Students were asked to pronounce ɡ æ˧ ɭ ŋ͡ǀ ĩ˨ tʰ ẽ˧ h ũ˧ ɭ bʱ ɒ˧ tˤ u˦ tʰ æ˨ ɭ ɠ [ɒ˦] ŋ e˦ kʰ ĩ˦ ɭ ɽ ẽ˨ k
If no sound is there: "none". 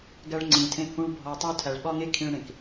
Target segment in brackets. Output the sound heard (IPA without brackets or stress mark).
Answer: ɒ˦